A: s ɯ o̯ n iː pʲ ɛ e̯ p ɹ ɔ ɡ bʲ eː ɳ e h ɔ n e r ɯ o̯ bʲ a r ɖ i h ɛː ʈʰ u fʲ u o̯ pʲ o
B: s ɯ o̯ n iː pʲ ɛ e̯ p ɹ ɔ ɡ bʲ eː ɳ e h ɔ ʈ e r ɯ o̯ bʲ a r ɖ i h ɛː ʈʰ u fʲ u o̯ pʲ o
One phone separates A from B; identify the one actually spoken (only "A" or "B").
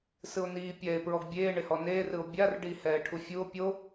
A